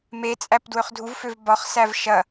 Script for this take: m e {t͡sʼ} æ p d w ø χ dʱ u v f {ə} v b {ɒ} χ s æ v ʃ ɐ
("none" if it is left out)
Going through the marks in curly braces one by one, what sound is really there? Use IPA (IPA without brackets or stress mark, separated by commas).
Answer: t͡sʼ, ø, ɒ